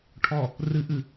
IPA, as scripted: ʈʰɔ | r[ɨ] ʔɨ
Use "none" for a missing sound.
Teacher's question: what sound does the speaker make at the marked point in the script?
ɨ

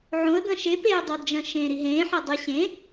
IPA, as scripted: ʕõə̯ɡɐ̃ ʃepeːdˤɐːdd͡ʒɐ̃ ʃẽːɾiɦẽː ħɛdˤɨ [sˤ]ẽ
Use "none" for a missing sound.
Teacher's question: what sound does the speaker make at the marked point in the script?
ɕ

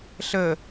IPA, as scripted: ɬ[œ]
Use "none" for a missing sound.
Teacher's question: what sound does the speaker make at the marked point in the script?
ə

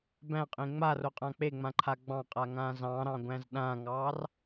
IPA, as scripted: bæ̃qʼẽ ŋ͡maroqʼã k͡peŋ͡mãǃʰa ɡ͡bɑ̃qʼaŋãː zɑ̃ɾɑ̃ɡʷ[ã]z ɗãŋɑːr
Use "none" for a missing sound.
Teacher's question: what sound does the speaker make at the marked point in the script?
æ̃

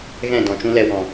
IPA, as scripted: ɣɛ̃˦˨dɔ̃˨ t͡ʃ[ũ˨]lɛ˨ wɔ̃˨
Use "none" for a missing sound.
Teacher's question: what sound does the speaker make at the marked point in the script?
ũ˧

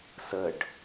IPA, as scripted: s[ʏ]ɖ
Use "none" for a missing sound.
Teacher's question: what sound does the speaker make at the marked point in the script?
ə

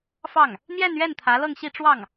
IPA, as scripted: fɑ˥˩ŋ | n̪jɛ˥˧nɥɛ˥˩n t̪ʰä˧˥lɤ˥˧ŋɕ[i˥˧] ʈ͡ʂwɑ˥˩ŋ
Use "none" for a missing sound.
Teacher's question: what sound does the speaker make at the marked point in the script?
i˥˧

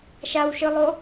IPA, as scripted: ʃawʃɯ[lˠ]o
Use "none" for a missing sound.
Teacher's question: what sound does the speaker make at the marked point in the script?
lˠ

